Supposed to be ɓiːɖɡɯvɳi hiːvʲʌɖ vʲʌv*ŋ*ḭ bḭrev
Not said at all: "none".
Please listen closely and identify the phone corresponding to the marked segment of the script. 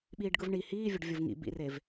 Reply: ŋ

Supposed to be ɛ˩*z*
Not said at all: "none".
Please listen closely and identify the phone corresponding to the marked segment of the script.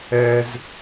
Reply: z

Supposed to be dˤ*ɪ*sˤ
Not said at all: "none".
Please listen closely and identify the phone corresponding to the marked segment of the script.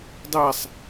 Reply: ɛ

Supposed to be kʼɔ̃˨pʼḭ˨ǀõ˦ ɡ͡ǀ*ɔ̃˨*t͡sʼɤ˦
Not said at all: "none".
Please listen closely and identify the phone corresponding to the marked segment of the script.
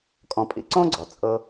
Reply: ɔ˨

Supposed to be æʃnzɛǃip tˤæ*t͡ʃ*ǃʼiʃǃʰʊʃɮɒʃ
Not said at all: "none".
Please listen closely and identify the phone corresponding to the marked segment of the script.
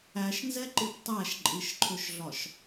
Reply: ʃ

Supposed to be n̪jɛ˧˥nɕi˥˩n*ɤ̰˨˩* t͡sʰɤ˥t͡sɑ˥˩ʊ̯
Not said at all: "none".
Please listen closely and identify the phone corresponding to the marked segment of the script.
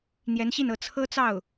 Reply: ɤ˧˥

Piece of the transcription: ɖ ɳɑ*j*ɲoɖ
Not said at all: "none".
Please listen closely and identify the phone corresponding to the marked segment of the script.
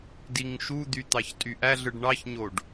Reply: ç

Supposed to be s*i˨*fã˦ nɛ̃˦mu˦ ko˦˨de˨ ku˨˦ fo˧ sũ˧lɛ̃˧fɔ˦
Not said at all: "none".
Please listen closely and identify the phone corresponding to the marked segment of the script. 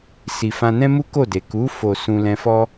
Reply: i˧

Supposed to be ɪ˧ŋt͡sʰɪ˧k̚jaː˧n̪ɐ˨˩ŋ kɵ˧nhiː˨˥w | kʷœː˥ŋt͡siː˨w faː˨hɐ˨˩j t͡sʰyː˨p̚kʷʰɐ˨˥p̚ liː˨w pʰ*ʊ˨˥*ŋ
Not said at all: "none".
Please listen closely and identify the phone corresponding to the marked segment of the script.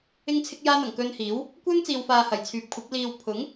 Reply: ʊ˨˥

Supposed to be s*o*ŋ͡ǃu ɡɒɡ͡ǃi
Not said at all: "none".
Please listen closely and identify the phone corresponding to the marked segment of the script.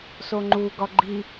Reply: o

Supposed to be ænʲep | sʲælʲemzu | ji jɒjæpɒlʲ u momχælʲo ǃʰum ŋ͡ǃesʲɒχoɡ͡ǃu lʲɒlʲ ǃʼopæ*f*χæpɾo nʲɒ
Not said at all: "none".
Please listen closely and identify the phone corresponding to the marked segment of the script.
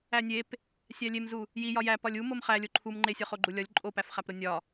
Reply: f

